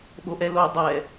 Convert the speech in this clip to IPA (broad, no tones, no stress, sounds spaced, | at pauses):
ɓ o ʔ ɛ l o dˤ ɛ